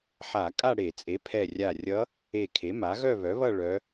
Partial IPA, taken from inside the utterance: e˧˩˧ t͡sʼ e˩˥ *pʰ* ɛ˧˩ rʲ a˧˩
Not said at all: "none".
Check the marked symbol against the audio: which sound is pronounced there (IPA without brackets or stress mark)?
pʰ